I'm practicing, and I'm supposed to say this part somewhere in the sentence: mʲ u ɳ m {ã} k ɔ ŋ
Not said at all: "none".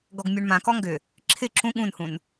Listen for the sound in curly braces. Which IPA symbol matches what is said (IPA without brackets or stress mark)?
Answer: ã